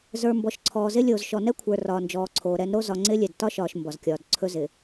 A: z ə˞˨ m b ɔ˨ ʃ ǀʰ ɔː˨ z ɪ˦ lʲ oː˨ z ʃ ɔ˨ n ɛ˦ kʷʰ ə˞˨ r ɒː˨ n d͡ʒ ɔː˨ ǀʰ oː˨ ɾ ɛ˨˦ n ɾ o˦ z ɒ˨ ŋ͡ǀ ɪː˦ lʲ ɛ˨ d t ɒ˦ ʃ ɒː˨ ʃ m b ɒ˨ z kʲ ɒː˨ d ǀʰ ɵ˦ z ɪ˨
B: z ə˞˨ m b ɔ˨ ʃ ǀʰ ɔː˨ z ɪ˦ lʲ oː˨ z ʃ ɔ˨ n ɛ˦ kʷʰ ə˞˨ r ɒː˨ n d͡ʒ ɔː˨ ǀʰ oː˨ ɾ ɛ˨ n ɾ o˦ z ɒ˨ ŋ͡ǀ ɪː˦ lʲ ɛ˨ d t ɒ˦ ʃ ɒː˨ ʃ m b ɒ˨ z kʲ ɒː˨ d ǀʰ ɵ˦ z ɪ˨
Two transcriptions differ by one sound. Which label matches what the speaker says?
A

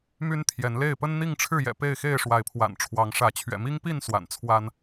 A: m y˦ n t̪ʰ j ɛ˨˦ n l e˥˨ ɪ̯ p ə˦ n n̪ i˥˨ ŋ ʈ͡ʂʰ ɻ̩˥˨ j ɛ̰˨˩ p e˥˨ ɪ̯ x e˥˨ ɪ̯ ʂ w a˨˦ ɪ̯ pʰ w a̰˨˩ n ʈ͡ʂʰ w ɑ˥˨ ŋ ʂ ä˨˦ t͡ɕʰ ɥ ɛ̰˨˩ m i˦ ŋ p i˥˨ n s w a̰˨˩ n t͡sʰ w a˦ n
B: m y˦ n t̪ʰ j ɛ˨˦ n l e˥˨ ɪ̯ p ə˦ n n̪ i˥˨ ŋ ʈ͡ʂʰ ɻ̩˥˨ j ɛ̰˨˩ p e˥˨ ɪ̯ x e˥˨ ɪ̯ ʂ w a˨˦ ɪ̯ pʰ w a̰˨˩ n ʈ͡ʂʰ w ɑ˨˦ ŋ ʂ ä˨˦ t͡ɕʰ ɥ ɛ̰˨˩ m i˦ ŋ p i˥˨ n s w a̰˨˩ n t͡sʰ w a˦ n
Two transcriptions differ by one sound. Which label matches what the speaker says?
B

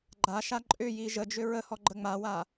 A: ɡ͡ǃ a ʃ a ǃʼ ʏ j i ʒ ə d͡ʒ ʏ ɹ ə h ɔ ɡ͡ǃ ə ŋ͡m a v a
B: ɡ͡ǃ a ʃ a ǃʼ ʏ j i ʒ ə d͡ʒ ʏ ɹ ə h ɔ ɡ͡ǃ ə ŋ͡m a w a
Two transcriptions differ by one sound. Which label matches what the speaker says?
B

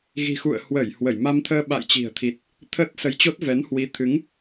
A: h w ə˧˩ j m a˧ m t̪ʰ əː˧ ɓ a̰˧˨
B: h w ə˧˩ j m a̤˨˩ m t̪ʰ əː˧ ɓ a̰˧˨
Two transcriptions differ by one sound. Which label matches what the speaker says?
A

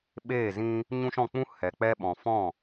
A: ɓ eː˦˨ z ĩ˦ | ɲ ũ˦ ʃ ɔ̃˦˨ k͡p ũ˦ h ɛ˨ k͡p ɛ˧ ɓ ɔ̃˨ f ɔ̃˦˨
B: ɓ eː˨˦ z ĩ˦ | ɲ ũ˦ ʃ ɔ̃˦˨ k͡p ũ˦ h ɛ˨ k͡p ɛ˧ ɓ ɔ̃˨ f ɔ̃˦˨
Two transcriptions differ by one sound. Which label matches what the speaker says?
A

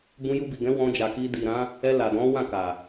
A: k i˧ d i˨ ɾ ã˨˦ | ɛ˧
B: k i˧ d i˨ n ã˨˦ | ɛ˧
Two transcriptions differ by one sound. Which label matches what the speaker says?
A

